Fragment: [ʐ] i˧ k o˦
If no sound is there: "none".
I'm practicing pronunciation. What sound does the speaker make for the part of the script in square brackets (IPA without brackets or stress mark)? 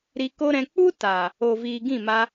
ɾ